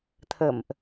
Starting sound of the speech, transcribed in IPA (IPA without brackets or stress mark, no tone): t̪ʰ